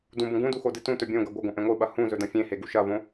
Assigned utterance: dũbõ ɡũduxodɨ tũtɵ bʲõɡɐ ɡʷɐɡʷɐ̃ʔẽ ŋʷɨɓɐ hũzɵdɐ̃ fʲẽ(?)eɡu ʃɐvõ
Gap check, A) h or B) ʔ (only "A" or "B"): A